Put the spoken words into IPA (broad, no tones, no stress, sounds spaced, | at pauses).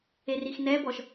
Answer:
e r i x n ɛ b ɔ ʃ